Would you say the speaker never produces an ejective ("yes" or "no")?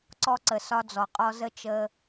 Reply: no